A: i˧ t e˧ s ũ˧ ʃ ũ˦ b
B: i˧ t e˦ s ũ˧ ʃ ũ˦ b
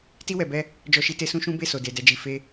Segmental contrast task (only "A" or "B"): A